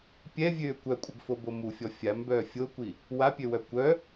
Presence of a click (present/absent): absent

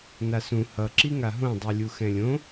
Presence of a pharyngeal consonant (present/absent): absent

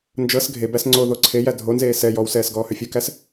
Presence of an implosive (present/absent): absent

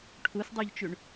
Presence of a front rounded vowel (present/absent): present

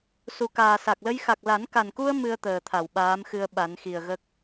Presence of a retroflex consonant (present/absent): absent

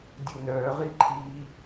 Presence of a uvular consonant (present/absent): present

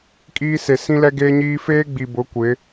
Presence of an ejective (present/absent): present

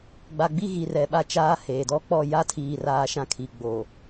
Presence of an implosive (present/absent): present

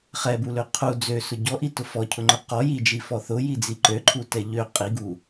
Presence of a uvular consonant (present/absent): present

